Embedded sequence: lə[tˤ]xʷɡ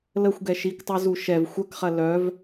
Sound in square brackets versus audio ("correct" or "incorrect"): incorrect